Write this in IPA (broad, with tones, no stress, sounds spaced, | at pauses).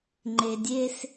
ŋ͡ǃ e˨ dʲ e˦ s